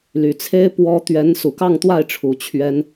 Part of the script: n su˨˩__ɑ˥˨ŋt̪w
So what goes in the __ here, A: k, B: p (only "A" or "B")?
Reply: A